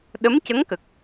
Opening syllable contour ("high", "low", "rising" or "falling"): rising